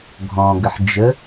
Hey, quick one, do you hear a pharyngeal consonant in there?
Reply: yes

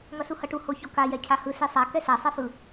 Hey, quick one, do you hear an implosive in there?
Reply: no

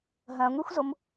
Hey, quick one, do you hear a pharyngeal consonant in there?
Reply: no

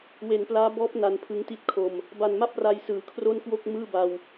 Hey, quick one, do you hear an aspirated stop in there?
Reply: yes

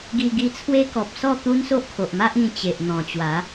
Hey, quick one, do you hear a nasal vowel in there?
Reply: yes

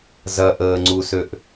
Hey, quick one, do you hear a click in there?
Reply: yes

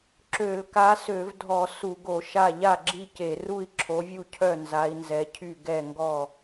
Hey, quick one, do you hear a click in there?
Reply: yes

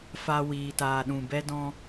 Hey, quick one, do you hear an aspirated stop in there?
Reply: no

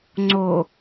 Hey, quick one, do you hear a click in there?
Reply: yes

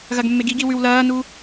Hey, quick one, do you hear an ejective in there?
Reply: no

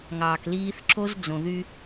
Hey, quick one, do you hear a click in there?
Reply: yes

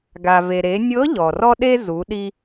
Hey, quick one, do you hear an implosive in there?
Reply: yes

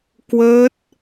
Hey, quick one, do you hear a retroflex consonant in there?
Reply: no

